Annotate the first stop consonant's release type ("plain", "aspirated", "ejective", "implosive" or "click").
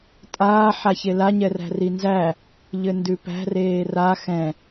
ejective